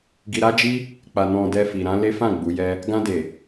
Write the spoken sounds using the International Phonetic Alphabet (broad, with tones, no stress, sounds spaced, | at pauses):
ɡ i˧ ɾ a˦ d͡ʒ i˦ | k͡p a˨ n ɔ̃˨ d ɛ˧ f i˨ ɾ ã˨˦ l e˦ f ã˦˨ ɡ͡b u˨˦ j ɛ˦ | ɡ ã˧ d e˨